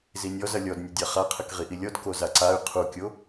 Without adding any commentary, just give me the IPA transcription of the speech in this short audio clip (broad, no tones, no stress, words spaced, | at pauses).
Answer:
zinʲɔzɐ lʲɔdnʲɐdʲa χaqʰɘk ʁiʔilʲɔd kozaǀay̯ qʰukʲo